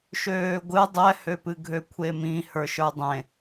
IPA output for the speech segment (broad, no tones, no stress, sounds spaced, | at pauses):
ʃ øː ɡʷ ɨ dˤ ɛ h ø p ɨ ɡʱ ø kʷʰ e m ĩ h ə˞ ʃ ə˞ dˤ ẽ